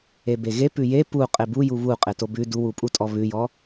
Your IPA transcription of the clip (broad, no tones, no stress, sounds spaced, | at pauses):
e b e ɣ e p ʉ j e p u qʼ e b u j u β u qʼ e t o b ʉ d u w u pʼ u tʼ ɔ β ʉ j ɔ